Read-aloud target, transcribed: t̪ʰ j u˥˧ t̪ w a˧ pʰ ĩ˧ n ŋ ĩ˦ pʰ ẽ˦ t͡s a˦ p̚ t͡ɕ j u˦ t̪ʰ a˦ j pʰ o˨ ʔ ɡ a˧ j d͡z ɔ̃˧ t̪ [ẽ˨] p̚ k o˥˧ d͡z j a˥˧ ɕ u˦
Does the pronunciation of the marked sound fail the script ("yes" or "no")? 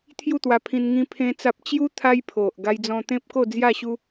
yes